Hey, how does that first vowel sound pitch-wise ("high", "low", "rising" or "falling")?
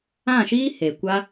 falling